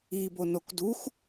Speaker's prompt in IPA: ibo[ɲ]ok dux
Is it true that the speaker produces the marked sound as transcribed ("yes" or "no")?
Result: no